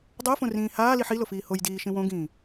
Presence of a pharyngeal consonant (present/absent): present